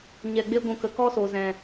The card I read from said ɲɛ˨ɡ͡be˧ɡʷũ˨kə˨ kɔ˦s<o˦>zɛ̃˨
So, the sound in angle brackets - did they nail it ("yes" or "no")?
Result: no